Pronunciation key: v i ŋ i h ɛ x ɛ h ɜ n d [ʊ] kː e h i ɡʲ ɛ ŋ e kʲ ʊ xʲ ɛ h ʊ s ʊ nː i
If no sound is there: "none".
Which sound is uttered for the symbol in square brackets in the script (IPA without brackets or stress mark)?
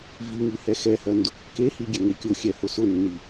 ʊ